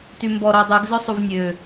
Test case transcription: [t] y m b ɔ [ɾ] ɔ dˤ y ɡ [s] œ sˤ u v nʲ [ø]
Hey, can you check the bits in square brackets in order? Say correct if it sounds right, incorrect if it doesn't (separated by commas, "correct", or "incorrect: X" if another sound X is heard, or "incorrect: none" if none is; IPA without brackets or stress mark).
correct, correct, incorrect: z, correct